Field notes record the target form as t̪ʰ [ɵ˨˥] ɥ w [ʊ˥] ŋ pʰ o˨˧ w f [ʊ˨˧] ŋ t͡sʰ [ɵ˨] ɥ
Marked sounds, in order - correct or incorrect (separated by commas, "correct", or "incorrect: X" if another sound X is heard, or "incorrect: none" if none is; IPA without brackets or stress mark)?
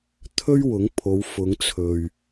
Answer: incorrect: ɵ˥, incorrect: ʊ˨˥, correct, correct